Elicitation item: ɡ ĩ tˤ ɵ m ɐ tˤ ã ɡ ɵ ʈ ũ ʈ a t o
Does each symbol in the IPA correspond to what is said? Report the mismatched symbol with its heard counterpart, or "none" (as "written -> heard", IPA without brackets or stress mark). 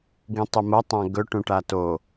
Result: none